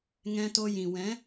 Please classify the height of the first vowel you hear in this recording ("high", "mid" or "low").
mid